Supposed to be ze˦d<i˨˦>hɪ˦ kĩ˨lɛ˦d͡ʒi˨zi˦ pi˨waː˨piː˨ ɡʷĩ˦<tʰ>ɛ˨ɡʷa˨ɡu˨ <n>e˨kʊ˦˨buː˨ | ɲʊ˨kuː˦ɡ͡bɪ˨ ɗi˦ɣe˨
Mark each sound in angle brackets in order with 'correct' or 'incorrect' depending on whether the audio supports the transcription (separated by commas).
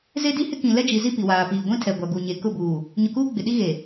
incorrect, correct, incorrect